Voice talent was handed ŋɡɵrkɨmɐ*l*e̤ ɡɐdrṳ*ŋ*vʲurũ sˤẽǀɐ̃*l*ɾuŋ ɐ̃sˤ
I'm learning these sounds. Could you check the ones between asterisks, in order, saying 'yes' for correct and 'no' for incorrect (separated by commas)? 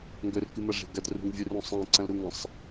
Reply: no, yes, yes